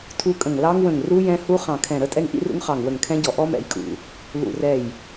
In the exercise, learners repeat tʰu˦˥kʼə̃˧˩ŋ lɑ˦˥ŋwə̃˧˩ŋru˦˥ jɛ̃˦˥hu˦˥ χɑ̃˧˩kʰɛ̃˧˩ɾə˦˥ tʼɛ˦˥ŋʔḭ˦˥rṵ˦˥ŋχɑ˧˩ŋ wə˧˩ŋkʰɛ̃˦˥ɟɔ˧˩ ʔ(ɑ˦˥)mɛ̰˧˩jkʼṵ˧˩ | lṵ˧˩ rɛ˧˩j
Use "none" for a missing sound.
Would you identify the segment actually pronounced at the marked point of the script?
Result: ɔ˦˥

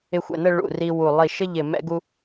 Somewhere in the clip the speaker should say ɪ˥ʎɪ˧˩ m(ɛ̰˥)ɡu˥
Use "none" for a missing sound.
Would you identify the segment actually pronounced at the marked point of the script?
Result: ɛ̰˥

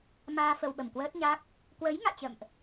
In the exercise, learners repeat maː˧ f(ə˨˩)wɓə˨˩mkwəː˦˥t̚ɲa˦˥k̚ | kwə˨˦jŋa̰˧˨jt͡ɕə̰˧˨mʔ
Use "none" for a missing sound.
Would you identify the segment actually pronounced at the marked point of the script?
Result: ə˧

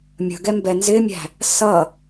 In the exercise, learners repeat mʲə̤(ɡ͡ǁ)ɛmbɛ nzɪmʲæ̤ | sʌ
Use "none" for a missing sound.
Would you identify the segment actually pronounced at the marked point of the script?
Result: ɡ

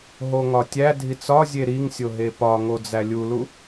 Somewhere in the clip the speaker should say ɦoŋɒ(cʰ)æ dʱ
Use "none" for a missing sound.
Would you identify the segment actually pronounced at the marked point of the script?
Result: tʲ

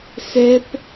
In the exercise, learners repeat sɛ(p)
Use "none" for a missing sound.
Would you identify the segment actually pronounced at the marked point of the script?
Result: p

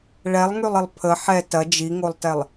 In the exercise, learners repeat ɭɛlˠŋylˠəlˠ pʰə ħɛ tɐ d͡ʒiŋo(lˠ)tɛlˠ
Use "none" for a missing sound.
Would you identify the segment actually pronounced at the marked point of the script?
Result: lˠ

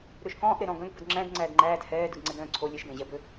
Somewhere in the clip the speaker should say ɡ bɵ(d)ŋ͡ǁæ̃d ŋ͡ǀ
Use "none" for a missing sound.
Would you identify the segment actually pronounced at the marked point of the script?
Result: d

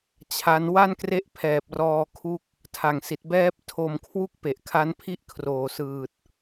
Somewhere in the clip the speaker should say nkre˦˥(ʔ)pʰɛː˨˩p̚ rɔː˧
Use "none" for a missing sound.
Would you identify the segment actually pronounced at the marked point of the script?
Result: ʔ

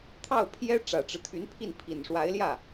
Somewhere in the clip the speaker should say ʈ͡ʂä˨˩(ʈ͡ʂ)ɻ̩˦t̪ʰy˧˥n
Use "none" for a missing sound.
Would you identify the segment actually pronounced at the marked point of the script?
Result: ʈ͡ʂ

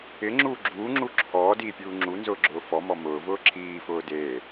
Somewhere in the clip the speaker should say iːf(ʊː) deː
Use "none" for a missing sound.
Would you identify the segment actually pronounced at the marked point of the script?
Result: ʊː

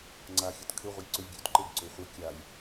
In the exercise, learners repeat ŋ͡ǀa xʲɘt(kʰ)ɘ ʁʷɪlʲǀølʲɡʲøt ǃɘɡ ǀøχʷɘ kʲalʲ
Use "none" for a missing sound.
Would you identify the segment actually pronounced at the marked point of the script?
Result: kʰ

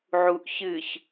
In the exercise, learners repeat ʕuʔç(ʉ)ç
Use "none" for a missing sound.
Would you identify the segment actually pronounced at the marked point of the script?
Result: ɨ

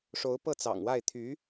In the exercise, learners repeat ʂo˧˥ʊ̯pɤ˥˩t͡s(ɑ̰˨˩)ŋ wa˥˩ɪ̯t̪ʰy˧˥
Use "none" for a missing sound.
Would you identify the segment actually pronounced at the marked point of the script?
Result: ɑ̰˨˩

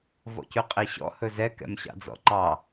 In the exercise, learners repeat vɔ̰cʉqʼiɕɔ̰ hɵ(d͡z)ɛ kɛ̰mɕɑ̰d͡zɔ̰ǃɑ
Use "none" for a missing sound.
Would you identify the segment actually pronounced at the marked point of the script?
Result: z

